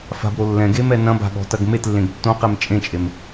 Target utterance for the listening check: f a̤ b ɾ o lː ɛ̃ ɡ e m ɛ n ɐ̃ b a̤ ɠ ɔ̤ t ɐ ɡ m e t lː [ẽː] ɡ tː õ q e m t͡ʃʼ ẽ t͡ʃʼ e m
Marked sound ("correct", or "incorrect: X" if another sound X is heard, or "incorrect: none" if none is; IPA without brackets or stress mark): incorrect: ẽ